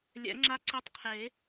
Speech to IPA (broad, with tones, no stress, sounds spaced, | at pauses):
lʲ ɛ̰˨˩˦ ŋ͡ǁ a˦˥ ǀ ø˦˥ tˤ qʰ e˨˩˦